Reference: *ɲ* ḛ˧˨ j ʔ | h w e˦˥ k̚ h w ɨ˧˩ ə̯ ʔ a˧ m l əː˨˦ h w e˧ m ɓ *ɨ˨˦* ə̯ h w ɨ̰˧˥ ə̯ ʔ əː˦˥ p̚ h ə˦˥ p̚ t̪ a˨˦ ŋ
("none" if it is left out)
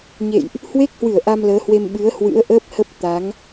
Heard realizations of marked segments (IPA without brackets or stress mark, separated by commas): ɲ, ɨ˨˦